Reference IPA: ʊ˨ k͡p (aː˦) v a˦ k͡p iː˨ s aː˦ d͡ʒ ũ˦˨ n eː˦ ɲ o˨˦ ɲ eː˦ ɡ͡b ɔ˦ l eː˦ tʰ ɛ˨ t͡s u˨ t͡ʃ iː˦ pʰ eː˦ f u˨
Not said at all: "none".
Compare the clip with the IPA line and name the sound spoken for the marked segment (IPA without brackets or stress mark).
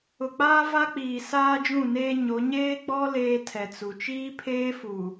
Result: aː˦